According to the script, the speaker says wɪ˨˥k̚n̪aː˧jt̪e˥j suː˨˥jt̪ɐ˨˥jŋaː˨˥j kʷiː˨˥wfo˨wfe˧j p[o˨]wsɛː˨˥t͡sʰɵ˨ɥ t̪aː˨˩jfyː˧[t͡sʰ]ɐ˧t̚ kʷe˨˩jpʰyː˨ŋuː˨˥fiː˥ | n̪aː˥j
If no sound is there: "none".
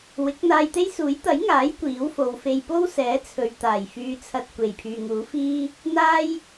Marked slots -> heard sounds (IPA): o˥, t͡sʰ

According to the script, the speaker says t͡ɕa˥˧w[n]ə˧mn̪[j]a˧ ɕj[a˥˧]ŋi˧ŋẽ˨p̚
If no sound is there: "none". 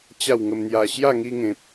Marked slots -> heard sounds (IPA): ŋ, j, a˥˧

